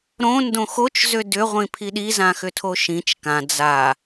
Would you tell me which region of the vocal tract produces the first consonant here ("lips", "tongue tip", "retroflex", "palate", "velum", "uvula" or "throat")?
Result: tongue tip